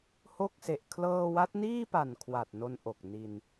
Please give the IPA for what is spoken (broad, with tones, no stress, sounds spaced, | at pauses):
h o˥˩ k̚ s e˨˩ ʔ kʰ l ɤː˧ w a˦˥ t̚ n iː˥˩ p a˨˩ n kʰ w a˨˩ t̚ n o˧ n ʔ o˨˩ k̚ n i˧ n